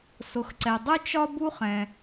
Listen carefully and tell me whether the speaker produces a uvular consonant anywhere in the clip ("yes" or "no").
yes